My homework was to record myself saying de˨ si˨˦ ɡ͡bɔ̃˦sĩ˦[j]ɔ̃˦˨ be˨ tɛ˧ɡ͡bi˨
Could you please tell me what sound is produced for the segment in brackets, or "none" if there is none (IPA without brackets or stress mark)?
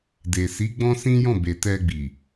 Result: j